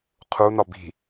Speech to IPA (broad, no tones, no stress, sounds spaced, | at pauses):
qʰ u n ɒ b i̤